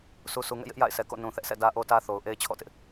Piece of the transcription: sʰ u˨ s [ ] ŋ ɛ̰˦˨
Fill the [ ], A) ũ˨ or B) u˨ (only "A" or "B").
B